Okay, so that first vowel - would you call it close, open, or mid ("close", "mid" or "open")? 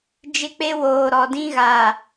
close